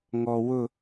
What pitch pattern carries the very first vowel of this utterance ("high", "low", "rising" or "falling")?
low